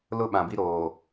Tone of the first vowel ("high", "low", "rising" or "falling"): high